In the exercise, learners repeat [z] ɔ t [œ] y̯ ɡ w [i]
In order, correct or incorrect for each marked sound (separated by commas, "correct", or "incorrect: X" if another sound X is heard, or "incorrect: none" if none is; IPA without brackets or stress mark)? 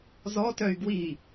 correct, correct, correct